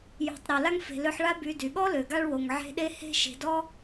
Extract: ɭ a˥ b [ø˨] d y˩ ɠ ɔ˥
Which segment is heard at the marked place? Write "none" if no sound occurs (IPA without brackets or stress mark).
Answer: y˨